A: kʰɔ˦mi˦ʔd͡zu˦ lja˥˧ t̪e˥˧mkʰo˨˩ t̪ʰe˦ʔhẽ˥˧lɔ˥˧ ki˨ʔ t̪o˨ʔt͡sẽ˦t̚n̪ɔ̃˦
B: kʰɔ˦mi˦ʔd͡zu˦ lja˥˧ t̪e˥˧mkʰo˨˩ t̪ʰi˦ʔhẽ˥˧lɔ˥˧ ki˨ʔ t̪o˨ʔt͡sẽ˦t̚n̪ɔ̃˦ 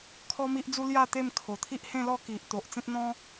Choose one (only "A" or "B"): B